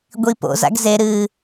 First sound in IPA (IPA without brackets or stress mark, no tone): ɡʷ